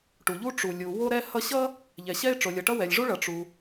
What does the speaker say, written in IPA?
ʈu˩ʎu˥ ʈ͡ʂu˩lʲu˩ wo˥ɾɛ˥hʌ˥ ɕʌ˥ | ʎɛ˩ɕɛ˥ɪ̯ʈ͡ʂo˩lʲʌ˩ ʈʌ˥wɛ˩lʲʐu˥ɭʌ˩ ʈ͡ʂu˩

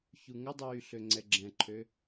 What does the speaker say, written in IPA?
çuŋədˤyː ɬøŋ͡ǀɛɡ͡ǁɛ̃ǃʰø

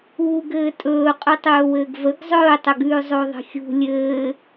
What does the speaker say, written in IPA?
uːɡɘːtʼɵː qʼʉtˤɵːwɘːɡvəɡ zˤɵːtˤəɡʉː zˤoðˤə̤xʲṳ lʲɘː

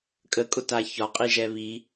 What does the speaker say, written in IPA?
kʼəkʼʊta çɒqʼiʒɛ βi

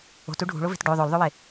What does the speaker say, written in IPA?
o̤tu ɖʱṳɭove̤t ɖo ðˤolðˤowe

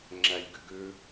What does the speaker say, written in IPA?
ŋ͡ǁælʲɡʏɡʏ

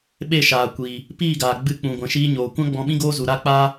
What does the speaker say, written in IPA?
ɓe˦˨ʃaː˨ kʷiː˨ | piː˦˨ɡaː˨ ɡ͡bɨ˧k͡pũ˨ ɡʷɛ̃˨ʃiː˧ɲoː˨kʷã˦ ɡ͡bɔ̃˧ɓĩ˦ɡoː˦zu˨ ɾa˦k͡paː˦

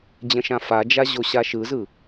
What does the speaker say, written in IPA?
d͡ʑə̃ʃãfad͡ʒa ʑoɕaʃɯzɯ

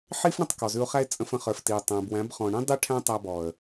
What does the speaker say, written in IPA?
ħi˦fɳə̃˧tˤ kɔ˨zʉ˧ʊ̯χæ˦ɪ̯ t͡sʼə̃˧fə̃˧χə˞˨fti˨ʊ̯ tˤæ̃˨bwæ̃˨˦b χɔ̃˨ɳĩ˦ dˤi˦ʈʰæ̃˦ tˤæ˧bɔ˨ə̯

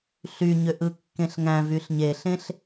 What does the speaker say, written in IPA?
ɬyɲøʔ ɯkːẽɬŋæ̃vyɬ ɲeɬẽɬ

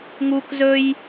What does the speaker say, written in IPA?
ŋuk zɵj

